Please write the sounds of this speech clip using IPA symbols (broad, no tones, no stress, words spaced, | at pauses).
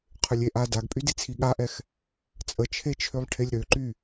qʰʏlʲeʔa daɡpʼydit͡sʰi ɠaʔɛx | t͡sʼət͡ʃʰet͡ʃʰølˠ ʈʰelʲɾøǃy